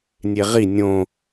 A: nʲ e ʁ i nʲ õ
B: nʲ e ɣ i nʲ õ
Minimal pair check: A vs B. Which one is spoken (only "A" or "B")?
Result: A